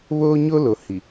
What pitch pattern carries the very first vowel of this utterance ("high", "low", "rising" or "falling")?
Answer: high